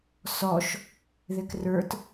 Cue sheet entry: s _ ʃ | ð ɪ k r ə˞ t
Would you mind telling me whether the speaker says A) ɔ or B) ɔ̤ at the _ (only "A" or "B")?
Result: A